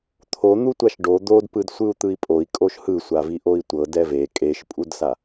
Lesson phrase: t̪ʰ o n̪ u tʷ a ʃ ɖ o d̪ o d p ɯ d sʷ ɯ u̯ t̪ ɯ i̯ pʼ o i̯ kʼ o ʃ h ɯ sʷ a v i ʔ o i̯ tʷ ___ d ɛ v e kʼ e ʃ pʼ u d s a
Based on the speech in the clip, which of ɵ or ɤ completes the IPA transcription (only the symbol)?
ɤ